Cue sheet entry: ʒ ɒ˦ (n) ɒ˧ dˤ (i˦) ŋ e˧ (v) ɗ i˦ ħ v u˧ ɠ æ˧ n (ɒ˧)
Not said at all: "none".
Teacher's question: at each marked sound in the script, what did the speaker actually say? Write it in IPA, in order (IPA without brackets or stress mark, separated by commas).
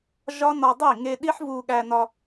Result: n, i˦˨, none, ɒ˧